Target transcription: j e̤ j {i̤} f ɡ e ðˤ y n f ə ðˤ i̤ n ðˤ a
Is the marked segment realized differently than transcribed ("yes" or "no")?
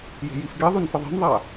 yes